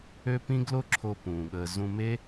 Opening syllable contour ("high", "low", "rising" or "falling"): high